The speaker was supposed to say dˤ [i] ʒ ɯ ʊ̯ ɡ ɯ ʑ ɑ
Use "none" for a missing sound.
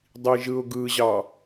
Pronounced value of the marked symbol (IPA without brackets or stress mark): i